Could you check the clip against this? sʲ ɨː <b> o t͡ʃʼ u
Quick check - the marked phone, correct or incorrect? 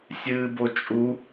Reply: correct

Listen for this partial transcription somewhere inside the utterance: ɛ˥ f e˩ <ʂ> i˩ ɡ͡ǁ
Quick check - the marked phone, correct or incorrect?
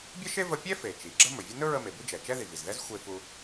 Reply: incorrect: t͡ʃ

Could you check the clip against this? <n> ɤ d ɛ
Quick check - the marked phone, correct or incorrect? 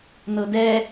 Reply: correct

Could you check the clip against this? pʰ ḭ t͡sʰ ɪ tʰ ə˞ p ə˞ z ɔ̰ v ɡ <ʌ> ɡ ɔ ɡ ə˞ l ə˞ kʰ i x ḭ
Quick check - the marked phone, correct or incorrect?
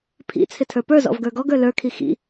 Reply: incorrect: ə˞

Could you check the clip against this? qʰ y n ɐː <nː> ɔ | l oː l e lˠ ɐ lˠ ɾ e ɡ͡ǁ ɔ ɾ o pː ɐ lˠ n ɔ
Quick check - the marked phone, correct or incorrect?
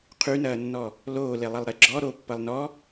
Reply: correct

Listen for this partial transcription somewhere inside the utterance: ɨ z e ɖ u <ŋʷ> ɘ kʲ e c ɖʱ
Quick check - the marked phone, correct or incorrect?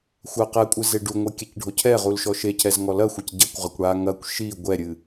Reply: correct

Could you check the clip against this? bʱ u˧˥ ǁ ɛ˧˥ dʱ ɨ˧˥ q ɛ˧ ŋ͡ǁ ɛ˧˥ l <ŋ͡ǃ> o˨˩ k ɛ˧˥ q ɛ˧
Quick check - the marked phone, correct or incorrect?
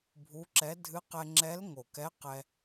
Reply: incorrect: ŋ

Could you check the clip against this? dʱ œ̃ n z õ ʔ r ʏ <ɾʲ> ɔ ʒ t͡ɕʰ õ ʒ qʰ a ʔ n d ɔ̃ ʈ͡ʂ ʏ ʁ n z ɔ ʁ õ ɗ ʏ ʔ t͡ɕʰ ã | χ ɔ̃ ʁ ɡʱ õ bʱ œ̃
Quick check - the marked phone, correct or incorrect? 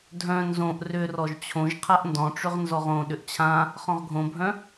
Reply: incorrect: r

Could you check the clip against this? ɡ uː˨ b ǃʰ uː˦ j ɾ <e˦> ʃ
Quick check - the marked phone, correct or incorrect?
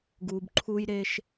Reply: correct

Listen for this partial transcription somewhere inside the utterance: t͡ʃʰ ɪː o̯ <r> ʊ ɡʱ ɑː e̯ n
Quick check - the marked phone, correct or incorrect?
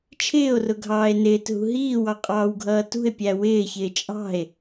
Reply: correct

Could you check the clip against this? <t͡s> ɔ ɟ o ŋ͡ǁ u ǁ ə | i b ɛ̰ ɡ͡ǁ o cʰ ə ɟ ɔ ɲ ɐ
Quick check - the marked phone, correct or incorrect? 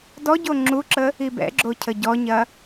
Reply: incorrect: d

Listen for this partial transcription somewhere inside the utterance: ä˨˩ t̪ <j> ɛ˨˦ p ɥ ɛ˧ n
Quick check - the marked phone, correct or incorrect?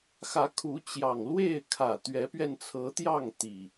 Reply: incorrect: ɥ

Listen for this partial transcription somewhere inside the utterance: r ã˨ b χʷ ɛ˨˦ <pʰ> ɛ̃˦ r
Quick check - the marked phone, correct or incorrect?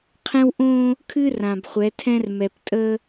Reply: incorrect: tʰ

